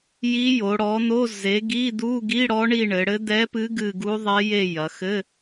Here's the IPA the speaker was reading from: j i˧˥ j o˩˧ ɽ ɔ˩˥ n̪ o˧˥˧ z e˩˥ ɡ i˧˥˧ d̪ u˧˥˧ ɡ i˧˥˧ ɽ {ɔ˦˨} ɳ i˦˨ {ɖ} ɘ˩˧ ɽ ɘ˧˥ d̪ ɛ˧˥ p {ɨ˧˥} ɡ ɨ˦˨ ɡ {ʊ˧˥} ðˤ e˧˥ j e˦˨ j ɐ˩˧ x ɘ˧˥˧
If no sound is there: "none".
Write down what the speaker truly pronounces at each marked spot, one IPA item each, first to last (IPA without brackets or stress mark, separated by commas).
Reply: ɔ˧˥, ɳ, ɨ˧˥, u˧˥